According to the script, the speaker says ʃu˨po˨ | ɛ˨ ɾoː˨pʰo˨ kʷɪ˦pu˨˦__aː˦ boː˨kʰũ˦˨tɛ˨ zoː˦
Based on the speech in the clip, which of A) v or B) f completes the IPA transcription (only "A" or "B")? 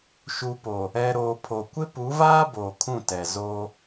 A